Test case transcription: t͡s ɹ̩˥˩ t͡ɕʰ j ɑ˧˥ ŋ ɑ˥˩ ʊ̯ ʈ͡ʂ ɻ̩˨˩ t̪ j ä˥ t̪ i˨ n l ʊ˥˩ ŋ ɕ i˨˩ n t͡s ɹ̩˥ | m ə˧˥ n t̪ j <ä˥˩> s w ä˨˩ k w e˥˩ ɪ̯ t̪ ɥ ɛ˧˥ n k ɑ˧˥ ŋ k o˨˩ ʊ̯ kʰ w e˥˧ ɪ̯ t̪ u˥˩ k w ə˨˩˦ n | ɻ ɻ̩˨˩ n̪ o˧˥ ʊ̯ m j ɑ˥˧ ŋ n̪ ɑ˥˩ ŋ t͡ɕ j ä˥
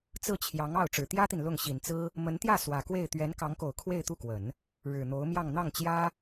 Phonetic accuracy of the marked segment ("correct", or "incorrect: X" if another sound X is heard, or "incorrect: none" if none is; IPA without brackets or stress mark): correct